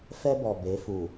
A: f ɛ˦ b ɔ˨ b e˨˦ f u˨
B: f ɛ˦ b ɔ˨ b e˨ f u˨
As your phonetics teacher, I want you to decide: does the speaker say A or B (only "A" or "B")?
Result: A